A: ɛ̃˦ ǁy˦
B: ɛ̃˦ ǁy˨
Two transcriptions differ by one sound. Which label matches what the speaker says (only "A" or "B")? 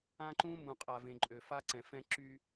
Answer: A